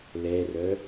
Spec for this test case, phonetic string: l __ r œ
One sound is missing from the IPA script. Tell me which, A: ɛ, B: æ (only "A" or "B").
A